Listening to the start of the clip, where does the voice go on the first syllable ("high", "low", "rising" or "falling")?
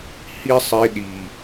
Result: high